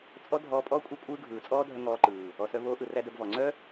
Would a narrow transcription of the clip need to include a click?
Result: yes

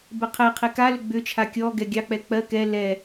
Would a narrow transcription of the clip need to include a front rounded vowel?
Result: yes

